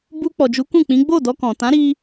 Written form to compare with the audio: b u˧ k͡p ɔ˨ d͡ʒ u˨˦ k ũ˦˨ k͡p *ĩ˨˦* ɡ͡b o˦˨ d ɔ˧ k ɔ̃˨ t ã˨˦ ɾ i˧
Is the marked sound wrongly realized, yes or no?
no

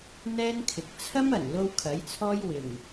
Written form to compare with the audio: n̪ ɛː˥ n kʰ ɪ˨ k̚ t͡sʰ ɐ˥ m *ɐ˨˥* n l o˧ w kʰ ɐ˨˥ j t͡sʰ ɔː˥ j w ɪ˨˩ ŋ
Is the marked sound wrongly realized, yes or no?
yes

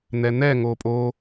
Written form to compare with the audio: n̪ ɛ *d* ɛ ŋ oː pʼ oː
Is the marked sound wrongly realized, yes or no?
yes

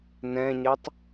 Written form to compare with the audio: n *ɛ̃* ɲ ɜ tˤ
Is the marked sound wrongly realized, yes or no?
no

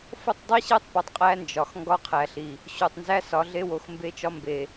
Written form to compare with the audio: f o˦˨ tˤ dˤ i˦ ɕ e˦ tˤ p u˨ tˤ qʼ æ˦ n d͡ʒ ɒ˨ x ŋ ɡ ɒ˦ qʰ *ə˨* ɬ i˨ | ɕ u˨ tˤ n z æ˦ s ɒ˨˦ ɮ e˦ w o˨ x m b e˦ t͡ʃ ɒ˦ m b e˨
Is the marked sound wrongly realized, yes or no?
yes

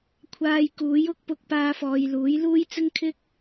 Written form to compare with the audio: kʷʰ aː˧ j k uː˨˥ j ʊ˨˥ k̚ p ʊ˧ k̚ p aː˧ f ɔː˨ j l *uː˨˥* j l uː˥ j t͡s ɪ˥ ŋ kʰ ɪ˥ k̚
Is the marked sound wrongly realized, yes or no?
no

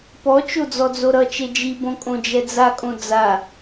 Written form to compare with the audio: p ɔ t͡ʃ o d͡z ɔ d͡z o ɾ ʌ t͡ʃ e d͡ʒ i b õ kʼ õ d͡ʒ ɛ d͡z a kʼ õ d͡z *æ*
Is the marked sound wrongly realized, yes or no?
yes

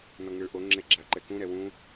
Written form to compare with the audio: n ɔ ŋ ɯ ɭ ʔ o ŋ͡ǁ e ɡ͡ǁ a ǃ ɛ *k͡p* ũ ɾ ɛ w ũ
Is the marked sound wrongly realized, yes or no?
yes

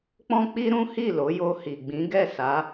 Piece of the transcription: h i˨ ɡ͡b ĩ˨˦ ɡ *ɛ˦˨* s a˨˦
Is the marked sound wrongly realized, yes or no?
no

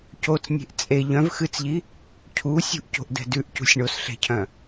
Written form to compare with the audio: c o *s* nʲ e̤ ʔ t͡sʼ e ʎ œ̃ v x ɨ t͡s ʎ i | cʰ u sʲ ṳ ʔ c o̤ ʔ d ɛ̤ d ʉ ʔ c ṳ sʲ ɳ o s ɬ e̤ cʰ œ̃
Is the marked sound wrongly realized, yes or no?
yes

